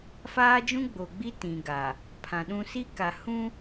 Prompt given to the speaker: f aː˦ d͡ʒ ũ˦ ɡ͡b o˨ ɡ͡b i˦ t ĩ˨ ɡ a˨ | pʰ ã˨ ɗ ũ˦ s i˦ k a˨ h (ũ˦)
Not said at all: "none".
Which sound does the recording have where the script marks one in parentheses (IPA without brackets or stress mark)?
ũ˦